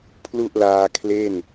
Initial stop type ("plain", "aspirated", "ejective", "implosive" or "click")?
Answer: aspirated